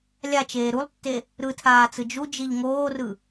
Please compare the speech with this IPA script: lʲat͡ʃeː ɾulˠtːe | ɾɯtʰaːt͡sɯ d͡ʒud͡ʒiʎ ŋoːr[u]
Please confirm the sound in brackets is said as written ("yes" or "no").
no